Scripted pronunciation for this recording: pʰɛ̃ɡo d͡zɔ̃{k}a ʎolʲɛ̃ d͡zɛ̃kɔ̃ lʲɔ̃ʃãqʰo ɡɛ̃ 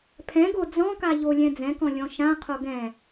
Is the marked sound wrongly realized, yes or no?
no